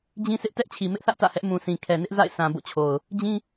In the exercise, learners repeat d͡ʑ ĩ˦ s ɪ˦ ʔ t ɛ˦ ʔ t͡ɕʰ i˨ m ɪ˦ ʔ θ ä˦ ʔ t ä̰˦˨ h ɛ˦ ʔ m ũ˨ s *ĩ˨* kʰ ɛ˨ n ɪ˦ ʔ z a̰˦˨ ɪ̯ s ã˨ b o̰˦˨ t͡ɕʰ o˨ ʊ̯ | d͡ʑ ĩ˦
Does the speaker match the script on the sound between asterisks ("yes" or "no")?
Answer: yes